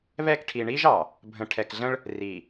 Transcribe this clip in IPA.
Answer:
β ɛ˦˨ k ʈʰ i˨ ɳ i˦ ʒ ɑ˨ | bʱ ə̃˨ ʈʰ ɛ˨ k ɮ ə̃˦ ɭ | r i˨

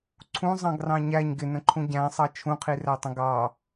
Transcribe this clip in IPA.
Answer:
ǀʰ ũ zˤ ɑ̃ ɡ r ɑ̃ ɲ æ ɲ ɡ ɪ n ə̃ ǃʰ ũ ɟ æ̃ sˤ ɑ t͡ʃʰ ũ qʰ i r æ tˤ ə̃ ɡ ɑ

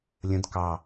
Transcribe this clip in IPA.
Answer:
lʲ ə̃ d k ɑ

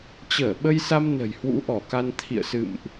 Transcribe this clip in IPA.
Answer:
t͡ɕ əː˧˩ ɓ ə˧ j s a˧ m n ə̤˨˩ j h w ṵ˧˥ ʔ ɔ˧˩ k a˧ n t̪ʰ ḭ˧˨ ə̯ s ɨ̰˧˨ m ʔ

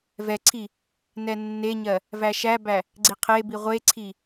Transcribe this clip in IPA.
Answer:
v ɛ ǀʰ i | n ɛ nː e ɲ ɜ | v æ ʃ æ b æ | ɡ͡ǀ i qʰ e b i ʁʷ e ǀʰ i

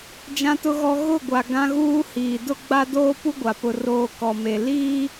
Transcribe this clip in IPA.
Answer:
d͡ʒ ã˦ t ʊ˦ ɣ ɔ˦ ɣ ʊ˦˨ ɡʷ a˨ ɡ ã˦ ɣ uː˦ h iː˨ d ʊ˦ ɡ͡b a˦ d oː˦ p u˦ ɡʷ a˨ p ʊ˦ r oː˦ k ɔ˨ m e˨ l iː˦

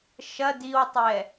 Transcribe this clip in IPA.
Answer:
ʃ ɐ d i w tˤ ɛ

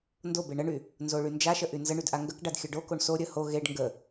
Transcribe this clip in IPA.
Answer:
n d o b e ɳ ə ɳ y | n z o ɭ y n d͡ʒ a ʃ ə ʔ y n z ə ɳ y d ʔ a ŋ ɡ ə k ɖ a d xʲ ə ɖ o k o ɳ s o ɾʲ ə h o ɣ e ɖ ŋ ɡ ə

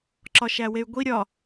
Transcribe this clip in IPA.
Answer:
ǁ ɒ ʃ æ w e y̯ ɡʷ i ɾʲ ɒ

